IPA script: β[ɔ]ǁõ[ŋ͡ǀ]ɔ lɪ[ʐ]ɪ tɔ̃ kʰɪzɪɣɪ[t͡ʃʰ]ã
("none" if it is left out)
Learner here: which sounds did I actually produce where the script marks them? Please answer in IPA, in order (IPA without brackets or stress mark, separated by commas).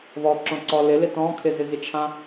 ɔ, ǀ, l, t͡ʃʰ